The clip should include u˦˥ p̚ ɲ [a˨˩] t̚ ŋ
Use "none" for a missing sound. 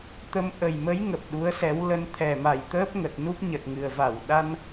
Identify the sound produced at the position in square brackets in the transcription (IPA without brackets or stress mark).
ə˨˩